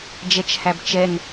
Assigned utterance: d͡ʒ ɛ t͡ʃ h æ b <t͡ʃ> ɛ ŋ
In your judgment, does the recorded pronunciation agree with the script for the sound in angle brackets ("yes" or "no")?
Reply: yes